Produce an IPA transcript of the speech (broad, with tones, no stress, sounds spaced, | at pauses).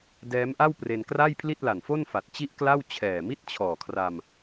d ɛː˦˥ m ʔ a˥˩ w p r e˧ n k r a˥˩ j pʰ l i˥˩ t̚ l a˨˩ n f o˥˩ n f a˨˩ t̚ t͡ɕ i˥˩ ʔ k l a˥˩ w t͡ɕʰ ɛː˨˩ m i˥˩ t̚ t͡ɕʰ ɔː˨˩ kʰ r a˧ m